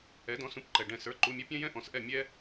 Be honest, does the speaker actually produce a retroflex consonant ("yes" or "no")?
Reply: yes